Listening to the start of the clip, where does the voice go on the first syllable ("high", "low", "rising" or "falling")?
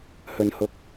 high